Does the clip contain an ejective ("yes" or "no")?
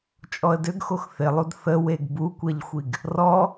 yes